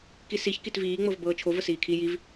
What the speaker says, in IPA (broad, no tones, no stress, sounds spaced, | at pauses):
k i s i ç k i t v iː ŋ͡m ɤ v b ɤː t͡ʃʰ o v ə s iː kʰ i j i v